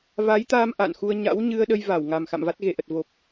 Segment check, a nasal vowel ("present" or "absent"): absent